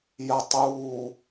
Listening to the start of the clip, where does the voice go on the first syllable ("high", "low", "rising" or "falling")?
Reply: low